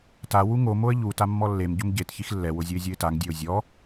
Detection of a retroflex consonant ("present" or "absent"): absent